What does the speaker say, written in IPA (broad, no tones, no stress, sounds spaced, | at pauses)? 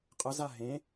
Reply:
qʼ ə z a ɦ ẽ